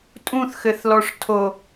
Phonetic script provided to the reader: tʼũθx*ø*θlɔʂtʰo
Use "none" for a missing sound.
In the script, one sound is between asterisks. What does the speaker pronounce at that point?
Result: ɘ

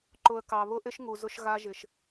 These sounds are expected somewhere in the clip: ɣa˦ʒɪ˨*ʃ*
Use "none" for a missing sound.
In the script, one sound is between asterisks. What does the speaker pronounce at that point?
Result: ʃ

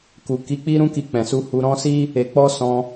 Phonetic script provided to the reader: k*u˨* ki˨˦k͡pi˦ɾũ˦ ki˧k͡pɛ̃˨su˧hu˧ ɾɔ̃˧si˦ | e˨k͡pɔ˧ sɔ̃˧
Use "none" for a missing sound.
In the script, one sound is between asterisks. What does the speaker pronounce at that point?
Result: u˨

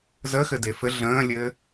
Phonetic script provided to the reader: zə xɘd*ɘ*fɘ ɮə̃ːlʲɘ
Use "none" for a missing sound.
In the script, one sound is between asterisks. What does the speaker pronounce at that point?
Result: e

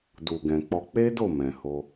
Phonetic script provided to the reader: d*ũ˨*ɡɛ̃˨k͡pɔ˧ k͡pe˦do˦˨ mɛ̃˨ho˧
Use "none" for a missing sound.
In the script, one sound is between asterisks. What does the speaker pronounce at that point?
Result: u˨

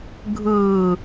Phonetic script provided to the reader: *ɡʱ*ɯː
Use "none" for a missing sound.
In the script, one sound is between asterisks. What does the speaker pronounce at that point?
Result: ɡʱ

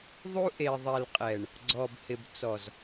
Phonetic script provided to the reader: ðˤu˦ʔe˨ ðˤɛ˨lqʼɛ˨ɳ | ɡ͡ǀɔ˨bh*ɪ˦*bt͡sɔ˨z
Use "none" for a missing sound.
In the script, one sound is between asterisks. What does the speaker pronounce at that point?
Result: ɪ˨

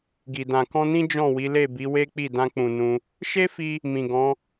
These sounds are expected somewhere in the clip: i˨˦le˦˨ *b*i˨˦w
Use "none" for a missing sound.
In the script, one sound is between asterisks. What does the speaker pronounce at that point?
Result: b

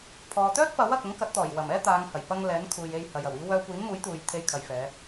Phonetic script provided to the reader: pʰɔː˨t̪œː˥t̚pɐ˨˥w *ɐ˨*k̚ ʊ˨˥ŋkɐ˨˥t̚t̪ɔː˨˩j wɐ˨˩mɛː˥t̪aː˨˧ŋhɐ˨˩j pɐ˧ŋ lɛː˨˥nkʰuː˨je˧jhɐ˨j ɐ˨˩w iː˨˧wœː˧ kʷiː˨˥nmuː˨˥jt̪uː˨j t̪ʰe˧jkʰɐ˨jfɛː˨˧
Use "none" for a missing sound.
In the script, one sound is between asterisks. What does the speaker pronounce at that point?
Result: ɐ˨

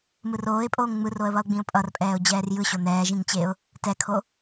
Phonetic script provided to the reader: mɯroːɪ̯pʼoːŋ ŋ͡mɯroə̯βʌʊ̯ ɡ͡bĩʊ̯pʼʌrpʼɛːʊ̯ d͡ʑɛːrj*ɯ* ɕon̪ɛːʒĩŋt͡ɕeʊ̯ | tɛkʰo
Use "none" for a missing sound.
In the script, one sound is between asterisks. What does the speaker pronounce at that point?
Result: ɯ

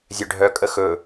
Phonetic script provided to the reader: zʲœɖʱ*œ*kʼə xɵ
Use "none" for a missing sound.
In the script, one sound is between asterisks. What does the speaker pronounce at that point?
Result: œ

